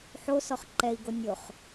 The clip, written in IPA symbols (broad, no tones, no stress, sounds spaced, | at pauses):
ħ o s ɔ χ ǃ ɛ i̯ ɡ o nʲ o χ